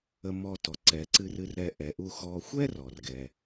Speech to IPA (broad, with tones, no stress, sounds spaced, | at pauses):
ə˨ m ɔ˨ t ɔ˩ ǀ ɛ˩ ǀ ɨ˨ r ɨ˨ r ɾ ɛ˨ ʔ ɛ˩ ʔ u˨ x ɔ˨ xʷ ɛ˦ r ɔ˩ r ɡ ɛ˩